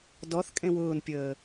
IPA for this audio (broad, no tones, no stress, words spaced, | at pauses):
dɔθ kʼẽwʊːnpʲəː